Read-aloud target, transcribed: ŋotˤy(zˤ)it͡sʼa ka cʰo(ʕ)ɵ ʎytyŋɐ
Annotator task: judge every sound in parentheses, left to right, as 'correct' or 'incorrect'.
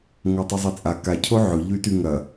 correct, correct

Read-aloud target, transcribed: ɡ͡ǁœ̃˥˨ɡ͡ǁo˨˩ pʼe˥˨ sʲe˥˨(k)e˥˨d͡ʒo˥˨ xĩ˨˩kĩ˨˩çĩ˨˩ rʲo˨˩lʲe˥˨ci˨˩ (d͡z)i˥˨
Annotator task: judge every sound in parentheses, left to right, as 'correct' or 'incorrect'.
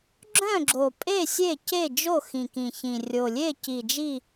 incorrect, incorrect

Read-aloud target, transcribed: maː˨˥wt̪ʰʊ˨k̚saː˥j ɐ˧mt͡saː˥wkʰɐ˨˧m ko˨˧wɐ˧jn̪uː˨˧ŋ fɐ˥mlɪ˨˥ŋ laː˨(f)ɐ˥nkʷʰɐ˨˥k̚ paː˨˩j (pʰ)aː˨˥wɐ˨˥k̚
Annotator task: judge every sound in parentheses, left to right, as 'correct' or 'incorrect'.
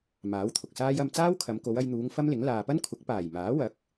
incorrect, incorrect

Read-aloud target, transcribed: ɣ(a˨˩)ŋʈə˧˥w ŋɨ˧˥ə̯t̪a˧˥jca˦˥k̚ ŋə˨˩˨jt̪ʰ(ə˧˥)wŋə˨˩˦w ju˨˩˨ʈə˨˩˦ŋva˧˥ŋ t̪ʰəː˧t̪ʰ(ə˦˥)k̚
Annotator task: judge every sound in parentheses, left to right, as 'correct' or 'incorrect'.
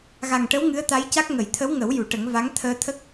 correct, correct, correct

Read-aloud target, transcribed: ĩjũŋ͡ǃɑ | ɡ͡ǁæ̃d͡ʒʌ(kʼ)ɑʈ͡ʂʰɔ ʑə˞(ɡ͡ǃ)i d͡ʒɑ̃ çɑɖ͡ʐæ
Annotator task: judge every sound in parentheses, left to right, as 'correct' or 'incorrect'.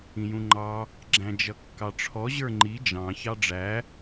incorrect, incorrect

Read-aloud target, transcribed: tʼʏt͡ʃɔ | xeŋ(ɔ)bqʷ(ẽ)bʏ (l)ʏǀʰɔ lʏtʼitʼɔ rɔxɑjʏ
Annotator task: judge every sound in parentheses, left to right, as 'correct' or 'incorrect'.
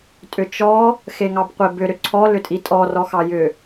incorrect, incorrect, incorrect

